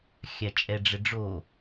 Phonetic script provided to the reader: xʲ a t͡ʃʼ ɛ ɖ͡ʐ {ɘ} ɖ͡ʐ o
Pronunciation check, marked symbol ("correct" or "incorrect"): correct